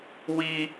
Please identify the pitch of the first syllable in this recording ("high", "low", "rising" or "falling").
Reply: high